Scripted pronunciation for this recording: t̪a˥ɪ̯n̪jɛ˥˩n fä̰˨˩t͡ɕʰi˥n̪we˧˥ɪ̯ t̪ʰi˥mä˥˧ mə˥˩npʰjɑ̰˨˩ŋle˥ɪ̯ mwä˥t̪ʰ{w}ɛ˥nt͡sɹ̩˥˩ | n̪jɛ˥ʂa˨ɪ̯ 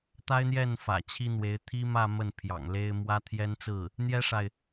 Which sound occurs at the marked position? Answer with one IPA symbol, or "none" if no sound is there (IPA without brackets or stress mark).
j